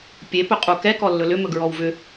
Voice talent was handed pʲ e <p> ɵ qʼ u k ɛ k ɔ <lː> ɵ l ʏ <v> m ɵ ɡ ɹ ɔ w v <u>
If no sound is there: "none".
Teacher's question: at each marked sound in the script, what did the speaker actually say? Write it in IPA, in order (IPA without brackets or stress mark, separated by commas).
p, lː, none, ʏ